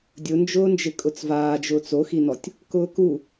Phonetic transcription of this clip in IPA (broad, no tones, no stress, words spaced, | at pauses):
dʲʊnd͡ʒʊːnd͡ʒɪ kʼʊt͡svaːd͡ʒʊːt͡s oxinɔtʲ | kʊːku